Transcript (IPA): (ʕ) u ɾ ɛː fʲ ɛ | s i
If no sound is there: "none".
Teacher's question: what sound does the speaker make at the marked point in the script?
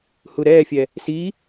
h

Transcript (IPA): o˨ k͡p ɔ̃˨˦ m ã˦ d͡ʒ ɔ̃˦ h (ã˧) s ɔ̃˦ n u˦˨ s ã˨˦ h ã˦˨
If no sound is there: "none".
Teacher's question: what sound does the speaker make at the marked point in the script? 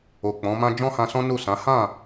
ã˧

